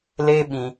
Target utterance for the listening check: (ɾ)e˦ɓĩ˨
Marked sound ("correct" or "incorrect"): incorrect